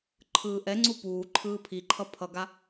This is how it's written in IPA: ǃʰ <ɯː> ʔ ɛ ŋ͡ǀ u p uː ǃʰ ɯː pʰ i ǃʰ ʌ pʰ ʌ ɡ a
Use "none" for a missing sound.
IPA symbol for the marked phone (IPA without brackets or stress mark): ɯː